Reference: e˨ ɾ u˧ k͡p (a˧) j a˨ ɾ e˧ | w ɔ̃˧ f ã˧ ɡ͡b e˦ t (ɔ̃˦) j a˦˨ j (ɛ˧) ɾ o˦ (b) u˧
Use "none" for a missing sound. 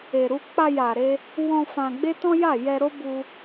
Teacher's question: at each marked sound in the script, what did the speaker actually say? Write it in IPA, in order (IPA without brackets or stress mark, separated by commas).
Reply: a˧, ɔ̃˦, ɛ˧, b